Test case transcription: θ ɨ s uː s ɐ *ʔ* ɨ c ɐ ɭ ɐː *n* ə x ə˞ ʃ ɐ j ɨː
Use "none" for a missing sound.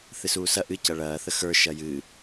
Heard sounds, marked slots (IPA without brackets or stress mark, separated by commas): ʔ, θ